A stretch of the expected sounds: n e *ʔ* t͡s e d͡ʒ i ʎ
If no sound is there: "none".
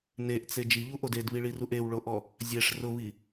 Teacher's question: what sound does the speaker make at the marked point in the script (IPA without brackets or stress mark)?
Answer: ʔ